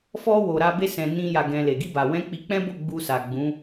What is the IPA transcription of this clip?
f ɔ˦ w o˧ ɾ a˦ b e˦ s ɛ̃˧ n ĩ˧ j a˧ ɡ ɛ̃˧ l e˨ ɡ i˧ b a˨ w ɛ̃˨˦ k͡p i˧ k͡p ɛ̃˦ b o˦˨ ɡ͡b u˧ s a˨ ɡ͡b ũ˨˦

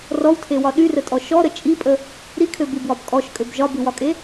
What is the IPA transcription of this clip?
r ɔ w tʰ e w ɒ ɗ y r ə tʼ ɔ ʃ ɔ ɾ ə t͡ʃʼ i pʼ ə | ɾ i kʰ ø b y b w ɒ b kʼ ɔ ʃ kʼ ø b ʒ ɒ b y w ɒ kʼ e

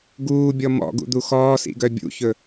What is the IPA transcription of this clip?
ɡ uː bʲ ɔ m ɔ̰ ɡ ṵ d̪ u x ɔː s ḭ ɡ œ bʲ ṵ ç ɵ

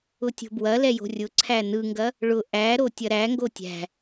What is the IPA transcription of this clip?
ʊ tʲ o̤ b w ɐ l ɛ j o̤ rʲ ʊ ǀʰ æ n ɯ ŋ ɡ ɐ | ɭ ʊ ʔ æ ɾ o tʲ ɐ ɾ æ ŋ ɡ o tʲ æ̤

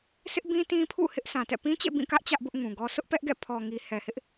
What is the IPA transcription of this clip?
s ɪ˦ ʔ b ĩ˦ t ĩ˦ pʰ ṵ˦˨ h ɪ˦ ʔ s ã˨ t ɛ̰˦˨ p ĩ˦ t͡ɕ ḛ˦˨ b ĩ˦˨ k ä˦ ʔ t͡ɕ ä˦ ʔ b ʊ˦ ʔ ŋ ũ˨ ɡ ɔ˦ s ʊ˦ ʔ p ɛ˦ ʔ ɡ ɛ̰˦˨ pʰ ɔ˨ ŋ i˨ h ɛ˨ h ɪ˦ ʔ

